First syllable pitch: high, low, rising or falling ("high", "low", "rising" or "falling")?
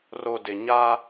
low